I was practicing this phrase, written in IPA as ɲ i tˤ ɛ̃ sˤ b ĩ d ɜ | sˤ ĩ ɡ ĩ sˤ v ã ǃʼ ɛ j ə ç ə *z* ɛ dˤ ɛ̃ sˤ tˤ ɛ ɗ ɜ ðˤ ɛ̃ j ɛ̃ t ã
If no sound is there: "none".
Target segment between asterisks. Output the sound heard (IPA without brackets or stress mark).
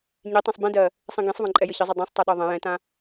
zˤ